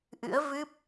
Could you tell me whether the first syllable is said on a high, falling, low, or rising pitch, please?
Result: rising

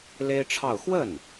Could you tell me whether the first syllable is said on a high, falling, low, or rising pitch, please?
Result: high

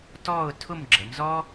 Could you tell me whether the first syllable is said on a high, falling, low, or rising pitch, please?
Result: falling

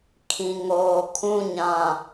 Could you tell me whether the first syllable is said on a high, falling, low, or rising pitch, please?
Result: low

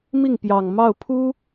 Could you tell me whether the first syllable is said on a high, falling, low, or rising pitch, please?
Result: falling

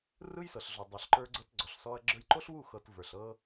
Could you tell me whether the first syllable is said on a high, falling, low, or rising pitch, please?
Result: high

